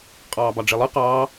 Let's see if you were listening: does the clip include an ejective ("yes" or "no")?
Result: yes